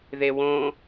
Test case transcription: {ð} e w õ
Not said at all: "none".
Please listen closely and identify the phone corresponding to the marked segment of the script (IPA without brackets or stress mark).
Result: ð